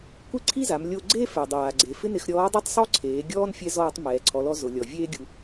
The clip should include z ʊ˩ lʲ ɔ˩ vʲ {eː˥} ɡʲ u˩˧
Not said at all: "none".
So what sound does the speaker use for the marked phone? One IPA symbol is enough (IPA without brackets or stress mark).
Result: eː˥